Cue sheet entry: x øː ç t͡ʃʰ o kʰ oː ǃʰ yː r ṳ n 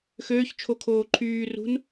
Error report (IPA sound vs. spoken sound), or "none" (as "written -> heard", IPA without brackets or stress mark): none